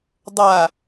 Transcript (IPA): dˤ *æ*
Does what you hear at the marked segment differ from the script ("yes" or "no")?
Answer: yes